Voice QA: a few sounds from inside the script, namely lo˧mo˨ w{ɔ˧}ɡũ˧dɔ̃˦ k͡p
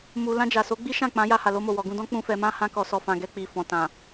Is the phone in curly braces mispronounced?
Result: yes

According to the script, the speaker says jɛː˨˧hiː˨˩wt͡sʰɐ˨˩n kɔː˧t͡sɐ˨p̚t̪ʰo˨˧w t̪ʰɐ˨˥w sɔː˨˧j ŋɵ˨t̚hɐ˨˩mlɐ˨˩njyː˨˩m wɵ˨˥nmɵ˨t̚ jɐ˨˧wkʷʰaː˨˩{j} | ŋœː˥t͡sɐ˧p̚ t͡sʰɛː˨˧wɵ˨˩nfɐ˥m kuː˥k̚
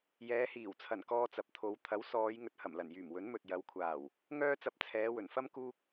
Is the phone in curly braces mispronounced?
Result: yes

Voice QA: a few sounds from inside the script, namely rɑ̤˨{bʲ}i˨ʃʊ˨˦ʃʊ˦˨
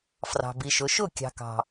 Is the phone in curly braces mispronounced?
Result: yes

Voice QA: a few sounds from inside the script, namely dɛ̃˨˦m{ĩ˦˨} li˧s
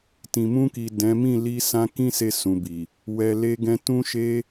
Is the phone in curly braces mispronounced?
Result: no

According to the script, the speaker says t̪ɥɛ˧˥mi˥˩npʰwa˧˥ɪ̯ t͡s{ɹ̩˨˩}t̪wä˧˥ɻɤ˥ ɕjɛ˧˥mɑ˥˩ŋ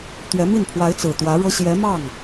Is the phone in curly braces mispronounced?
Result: no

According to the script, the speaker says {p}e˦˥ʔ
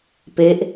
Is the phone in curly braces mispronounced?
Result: no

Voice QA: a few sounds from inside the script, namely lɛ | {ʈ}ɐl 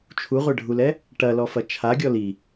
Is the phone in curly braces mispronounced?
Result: no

